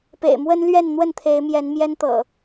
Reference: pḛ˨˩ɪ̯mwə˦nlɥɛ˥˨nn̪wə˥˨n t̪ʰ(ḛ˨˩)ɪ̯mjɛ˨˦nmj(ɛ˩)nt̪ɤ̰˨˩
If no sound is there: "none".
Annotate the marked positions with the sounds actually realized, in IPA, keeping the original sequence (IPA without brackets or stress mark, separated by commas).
e˨˦, ɛ˦